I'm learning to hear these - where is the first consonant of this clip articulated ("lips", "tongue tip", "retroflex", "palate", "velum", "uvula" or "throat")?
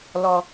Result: tongue tip